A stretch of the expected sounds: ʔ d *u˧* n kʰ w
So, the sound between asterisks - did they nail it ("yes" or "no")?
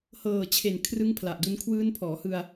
no